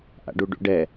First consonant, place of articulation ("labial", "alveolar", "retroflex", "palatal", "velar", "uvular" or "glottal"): glottal